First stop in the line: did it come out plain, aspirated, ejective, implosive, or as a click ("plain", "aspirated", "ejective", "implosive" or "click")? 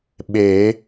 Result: implosive